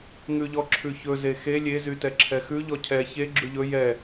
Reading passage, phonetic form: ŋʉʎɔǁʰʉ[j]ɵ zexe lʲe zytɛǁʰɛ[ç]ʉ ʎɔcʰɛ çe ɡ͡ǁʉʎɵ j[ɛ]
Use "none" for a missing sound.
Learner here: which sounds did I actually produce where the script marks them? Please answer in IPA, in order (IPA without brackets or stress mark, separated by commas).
ç, x, ɛ